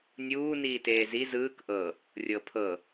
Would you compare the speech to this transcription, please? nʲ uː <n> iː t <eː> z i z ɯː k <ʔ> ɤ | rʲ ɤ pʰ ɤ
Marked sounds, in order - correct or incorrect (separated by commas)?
correct, correct, correct